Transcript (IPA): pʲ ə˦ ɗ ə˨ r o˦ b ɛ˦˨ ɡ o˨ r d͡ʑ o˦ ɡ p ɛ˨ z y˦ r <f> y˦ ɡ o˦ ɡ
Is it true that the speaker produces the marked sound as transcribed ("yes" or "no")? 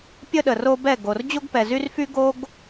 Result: yes